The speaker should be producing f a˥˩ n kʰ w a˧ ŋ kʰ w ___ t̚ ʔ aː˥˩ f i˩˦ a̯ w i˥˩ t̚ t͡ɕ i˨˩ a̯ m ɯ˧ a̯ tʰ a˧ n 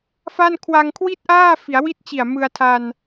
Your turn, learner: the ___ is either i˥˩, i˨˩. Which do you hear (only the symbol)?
i˥˩